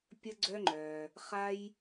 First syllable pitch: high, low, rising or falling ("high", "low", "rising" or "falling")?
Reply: high